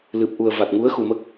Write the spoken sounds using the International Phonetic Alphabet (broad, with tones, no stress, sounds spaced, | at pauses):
l ɨ˨˩ p̚ ʔ u˨˩ ə̯ v a˨˩ t̚ ŋ u˧˥ ə̯ x u˨˩ m ə˦˥ k̚